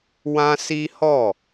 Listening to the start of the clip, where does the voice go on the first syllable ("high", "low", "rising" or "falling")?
high